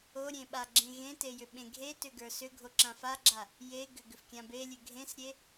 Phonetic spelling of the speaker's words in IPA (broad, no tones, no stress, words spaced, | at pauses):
oɾʲẽ ɓaɡ͡ǁẽɣẽte jʏɓẽɡʱetʏ ɡə˞sʏɡʱo ǁãfaɡ͡ǁa | jeɡʏ ɡʏfkʲãbelʲʉ ɡʱẽsɾʲe